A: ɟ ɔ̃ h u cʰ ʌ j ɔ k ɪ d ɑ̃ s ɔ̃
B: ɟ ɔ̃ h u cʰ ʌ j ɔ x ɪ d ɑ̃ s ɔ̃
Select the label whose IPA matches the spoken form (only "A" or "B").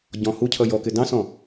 A